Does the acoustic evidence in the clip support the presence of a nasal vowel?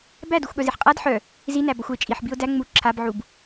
no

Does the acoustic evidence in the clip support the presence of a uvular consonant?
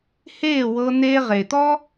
yes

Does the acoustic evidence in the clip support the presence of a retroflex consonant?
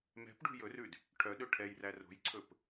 yes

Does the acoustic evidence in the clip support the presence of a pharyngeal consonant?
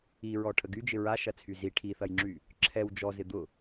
no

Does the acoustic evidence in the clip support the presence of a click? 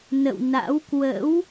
no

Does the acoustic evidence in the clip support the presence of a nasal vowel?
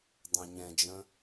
yes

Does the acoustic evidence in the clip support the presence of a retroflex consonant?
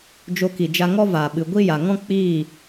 no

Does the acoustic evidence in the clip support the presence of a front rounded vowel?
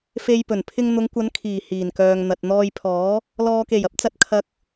yes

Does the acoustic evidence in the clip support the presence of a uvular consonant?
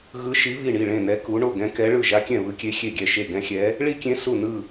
no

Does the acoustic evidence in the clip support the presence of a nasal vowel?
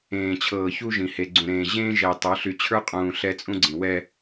yes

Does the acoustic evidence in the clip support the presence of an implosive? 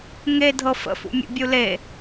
no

